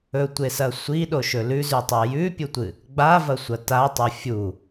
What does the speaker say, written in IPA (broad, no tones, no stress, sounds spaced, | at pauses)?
ɵ tʷ e s ɐ sʷ i ɗ o ʃ ɵ l ʉ z ʉ tˤ a j ʉ pʲ u tʷ ɨ | ɡ͡b a v ɐ sʷ ɐ t a tˤ o fʲ u